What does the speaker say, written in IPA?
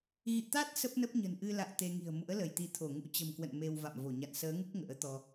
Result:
ɣ ḭ˧˨ t̪ a˦˥ t̚ s ə˦˥ p̚ n ə˦˥ p̚ ɲ ə̤˨˩ n ʔ ɨ˧ l a̰˧˨ w t̪ e˧ ŋ i̤˨˩ ə̯ m ṵ˧˥ ə̯ l ə˧˩ j t̪ i˨˦ t̪ʰ o˧˩ ŋ ṵ˧˥ t͡ɕ ə̤˨˩ m k w ə̰˧˨ n m e˧ w v a̰˧˨ m v o˧˩ ɲ a̰˧˨ n s əː˨˦ ŋ u˦˥ k̚ ŋ ə̰ː˧˥ t̪ ɔ˧

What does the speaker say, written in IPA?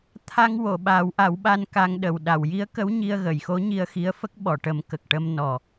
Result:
t̪ʰ a˧ ŋ w o˨˩˨ ɓ aː˨˩˦ w ʔ a˨˩˦ w ɓ a˧ n k a˧ ŋ ɗ ə˨˩ w ɗ a˨˩˨ w j i˧˥ ə̯ k ə˧˥ w ɲ i˧ ə̯ ɣ ə˨˩˨ j x o˧˥ ɲ i˧ ə̯ x i˧˥ ə̯ f ə˦˥ k̚ ɓ ɔ˨˩˨ ʈ ə˨˩˦ m k ə˨˩ k̚ ʈ ə˧ m n ɔ˨˩

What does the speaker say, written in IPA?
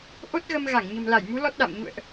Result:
ʔ o˦˥ t̚ ɣ ə˧ m ɣ a˧˩ ŋ ɲ ə̤˨˩ m l a˧˩ j m u˨˦ l ɔ˦˥ t̚ ɗ a̰˧˨ m ɲ ṵ˧˨ ə̯ ʔ

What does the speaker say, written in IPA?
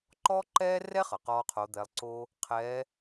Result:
ǃ ɔ˥ ǃ ɛː˥ r ɛ˥ χ ʌ˩ q ɔː˥ qʰ o˧˥ d̪ ɛː˧˥ lˠ ǀ o˥ | qʰ ɛː˧˥

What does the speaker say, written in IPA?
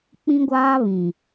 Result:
k͡p ĩ˦ ɡʷ aː˦ β ĩ˨

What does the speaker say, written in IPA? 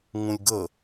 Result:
ŋ ũ lʲ ɡ ə

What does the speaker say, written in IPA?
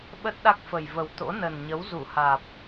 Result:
ɓ ə˦˥ t̚ ɗ a˦˥ k̚ f ə˨˩ j v ə˨˩ w t̪ o̰˧˥ n ə˨˩ n ɲ ə˨˦ w z u˧˩ h aː˨˩ p̚

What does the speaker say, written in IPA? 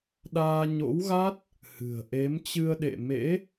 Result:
ɗ aː˧ ɲ o̰˧˥ w ɣ a˦˥ t̚ | h ɨ̤˨˩ ə̯ ʔ e˨˦ m t͡ɕ ɨ˧ ə̯ ɗ ḛ˧˨ m ḛ˧˥

